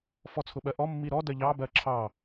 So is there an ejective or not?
no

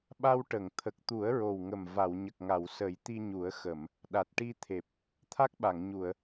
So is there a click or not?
no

